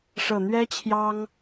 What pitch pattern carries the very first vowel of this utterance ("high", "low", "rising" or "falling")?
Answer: low